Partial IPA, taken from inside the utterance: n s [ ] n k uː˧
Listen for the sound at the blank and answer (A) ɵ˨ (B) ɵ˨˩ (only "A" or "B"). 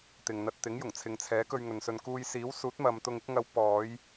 A